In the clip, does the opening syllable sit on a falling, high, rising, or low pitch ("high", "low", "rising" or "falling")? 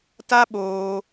high